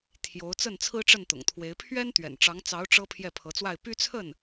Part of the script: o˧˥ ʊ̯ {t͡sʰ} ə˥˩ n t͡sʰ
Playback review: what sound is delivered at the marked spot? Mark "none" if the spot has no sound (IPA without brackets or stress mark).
t͡s